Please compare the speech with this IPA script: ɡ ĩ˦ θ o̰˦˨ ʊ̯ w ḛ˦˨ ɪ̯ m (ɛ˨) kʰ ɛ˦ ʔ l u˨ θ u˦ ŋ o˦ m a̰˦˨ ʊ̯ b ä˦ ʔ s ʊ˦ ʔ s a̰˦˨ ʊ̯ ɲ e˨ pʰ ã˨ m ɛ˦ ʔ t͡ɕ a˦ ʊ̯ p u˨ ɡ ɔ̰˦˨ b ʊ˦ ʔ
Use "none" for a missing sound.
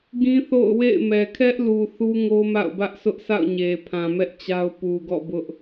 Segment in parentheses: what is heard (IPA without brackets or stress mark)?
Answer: ɛ˨